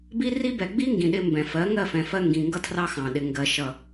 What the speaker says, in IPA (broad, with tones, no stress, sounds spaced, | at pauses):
b i˦ r i˦ b ɛ˨ ɡ͡b i˦ ŋ ɡ ĩ˨ ɗ ɪ˧ m b ɛ̃˨ f ɜ˨˦ ŋ ɜ˦˨ f ɛ̃˨ f ɜ˧ ŋ ɡ ĩ˨ ŋ ɡ ʌ˧ tʰ r ɑ˧ x ɑ̃˨ ɗ ɪ˨ ŋ ɡ ɜ˨ ʃ ʌ˨